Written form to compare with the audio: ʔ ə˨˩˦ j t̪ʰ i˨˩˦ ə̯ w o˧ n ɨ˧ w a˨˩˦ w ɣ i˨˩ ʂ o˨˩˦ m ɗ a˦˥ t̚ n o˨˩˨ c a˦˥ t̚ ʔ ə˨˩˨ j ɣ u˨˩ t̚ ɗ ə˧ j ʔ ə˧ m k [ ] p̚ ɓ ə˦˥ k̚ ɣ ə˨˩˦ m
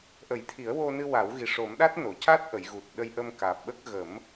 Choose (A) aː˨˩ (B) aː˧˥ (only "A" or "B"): A